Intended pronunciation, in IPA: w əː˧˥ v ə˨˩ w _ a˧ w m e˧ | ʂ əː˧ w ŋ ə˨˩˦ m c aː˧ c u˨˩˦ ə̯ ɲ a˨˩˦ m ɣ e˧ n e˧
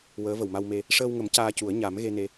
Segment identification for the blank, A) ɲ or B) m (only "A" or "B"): B